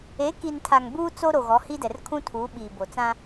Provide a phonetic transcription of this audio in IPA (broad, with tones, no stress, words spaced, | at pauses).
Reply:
e˨˦ki˨ntʰa˨ŋ buː˦t͡so˦ ɾo˨ɣɔ˨˦hi˦dɛ˨r kʰũ˦tʰuː˨˦ɓiː˨ bo˨t͡sã˦